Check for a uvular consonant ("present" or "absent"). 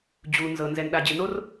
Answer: absent